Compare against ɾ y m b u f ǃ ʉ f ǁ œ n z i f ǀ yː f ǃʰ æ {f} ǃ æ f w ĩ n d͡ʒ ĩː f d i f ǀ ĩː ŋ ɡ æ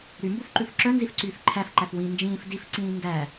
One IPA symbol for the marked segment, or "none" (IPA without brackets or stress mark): f